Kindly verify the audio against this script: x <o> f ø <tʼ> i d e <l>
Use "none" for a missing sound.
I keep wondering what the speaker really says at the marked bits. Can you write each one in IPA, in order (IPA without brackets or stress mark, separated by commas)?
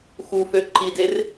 u, ǃ, r